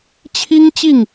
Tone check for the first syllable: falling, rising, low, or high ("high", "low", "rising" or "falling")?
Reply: high